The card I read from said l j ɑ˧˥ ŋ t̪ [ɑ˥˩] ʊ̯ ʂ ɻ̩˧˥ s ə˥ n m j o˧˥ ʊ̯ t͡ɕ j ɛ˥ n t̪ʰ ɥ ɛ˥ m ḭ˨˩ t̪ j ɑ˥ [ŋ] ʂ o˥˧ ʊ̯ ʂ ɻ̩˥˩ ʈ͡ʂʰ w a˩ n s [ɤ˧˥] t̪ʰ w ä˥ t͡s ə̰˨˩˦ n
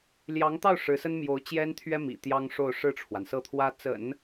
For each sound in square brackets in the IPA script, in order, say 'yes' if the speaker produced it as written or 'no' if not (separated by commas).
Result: yes, yes, no